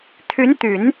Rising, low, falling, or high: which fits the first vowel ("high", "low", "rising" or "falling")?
rising